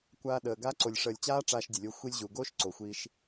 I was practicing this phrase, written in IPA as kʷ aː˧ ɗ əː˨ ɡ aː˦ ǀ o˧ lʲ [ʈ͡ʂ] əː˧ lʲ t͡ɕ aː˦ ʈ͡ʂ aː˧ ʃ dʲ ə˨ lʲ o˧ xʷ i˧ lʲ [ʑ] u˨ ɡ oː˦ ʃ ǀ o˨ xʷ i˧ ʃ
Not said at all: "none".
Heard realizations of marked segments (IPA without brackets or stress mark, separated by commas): ʂ, ʑ